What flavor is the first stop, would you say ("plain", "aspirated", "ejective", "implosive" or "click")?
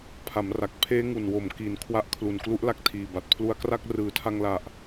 aspirated